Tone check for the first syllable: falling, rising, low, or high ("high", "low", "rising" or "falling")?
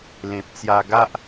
low